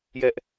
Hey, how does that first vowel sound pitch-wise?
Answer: high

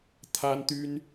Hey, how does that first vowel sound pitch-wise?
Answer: high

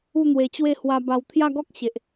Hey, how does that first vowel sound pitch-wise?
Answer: falling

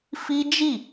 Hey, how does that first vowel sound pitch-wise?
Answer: high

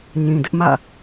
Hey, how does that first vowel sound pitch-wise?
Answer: low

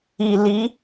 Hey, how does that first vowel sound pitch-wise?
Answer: low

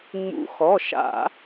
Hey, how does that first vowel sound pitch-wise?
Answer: rising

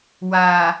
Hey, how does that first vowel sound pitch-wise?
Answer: low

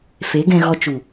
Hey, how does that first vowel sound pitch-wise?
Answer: rising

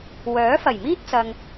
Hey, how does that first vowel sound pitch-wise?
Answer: rising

